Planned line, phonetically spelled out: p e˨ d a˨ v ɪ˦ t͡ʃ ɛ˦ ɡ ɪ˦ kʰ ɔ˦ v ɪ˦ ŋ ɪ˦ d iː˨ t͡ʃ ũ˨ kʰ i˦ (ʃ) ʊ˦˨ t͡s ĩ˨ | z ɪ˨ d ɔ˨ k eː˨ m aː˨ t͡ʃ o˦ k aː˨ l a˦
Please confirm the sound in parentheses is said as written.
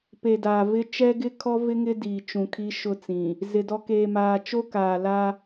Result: yes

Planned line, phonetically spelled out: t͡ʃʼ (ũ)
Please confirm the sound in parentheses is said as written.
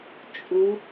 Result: no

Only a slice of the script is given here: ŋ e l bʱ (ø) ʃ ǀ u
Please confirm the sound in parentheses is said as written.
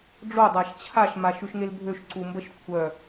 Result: yes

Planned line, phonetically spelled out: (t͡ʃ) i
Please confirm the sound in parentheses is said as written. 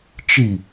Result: yes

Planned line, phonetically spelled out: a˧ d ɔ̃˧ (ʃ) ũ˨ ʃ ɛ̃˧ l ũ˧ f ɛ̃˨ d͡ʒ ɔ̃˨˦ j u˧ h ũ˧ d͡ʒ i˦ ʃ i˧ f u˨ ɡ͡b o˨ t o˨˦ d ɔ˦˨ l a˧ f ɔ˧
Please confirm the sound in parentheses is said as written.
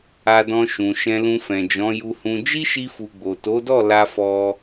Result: yes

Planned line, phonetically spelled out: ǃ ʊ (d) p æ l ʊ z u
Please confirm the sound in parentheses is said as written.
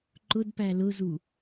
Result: yes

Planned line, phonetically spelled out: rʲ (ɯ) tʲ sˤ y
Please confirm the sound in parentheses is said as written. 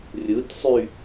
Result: yes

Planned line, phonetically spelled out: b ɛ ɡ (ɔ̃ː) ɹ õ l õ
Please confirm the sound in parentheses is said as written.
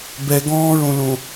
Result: yes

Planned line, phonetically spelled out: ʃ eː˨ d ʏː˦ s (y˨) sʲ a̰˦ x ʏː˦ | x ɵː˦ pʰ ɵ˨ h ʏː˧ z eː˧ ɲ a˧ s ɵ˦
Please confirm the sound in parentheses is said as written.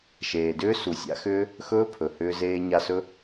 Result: no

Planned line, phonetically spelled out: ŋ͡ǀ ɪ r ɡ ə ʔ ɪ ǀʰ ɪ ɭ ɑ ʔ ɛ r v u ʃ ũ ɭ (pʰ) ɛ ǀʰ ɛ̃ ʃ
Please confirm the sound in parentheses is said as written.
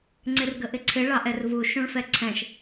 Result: no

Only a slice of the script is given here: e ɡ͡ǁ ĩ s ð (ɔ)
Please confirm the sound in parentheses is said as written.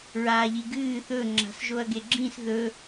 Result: no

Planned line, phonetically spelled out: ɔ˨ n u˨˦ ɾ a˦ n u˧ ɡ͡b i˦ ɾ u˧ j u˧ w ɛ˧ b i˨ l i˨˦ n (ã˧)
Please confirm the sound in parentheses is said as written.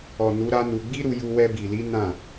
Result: no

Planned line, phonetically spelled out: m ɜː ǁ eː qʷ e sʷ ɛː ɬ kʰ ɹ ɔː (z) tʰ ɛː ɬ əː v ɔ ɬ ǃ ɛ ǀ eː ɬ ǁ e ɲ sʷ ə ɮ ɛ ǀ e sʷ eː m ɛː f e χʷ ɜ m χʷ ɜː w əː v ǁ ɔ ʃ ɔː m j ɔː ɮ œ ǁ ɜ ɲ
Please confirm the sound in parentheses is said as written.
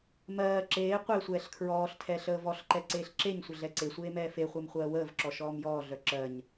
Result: no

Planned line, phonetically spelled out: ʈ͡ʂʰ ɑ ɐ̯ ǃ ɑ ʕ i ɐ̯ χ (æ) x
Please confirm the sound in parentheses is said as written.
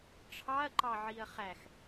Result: yes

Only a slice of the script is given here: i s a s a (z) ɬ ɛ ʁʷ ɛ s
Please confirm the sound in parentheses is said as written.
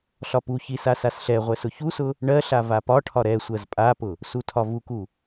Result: no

